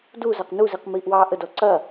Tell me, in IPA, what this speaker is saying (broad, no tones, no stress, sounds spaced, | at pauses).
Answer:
d u z a q n u z i q m iː ʔ w ɑː ʔ ə d ɔ ǀ ɐ